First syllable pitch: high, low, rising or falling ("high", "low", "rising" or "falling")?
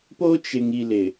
high